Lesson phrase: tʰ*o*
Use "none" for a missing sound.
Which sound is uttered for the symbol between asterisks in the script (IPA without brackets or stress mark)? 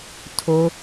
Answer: o